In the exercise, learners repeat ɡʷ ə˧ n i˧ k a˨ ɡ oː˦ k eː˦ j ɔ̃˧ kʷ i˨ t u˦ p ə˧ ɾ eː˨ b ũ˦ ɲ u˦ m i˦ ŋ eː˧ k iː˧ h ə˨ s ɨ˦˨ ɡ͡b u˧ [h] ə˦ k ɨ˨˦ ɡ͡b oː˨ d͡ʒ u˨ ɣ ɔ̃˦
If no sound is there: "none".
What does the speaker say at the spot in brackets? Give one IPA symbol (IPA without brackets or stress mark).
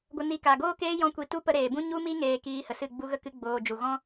ɣ